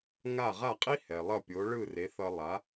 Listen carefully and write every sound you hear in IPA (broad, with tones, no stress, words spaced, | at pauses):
ŋa˥˩ ʁa˥˩qʼi˥ hɛ˩lˠʌ˥˩pʲo˩˥ɭɯ˥˩ re˩˥θʌ˧ lˠa˩˥